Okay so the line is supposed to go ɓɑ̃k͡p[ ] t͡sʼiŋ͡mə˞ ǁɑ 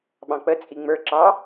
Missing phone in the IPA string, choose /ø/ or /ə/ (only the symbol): ə